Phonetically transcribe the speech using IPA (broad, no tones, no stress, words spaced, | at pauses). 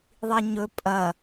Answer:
ðˤiɲɵ pʼɐ